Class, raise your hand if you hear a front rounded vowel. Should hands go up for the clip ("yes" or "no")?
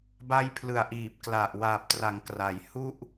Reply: no